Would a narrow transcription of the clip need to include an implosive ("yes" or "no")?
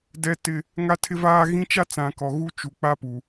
no